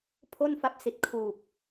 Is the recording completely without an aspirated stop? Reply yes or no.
no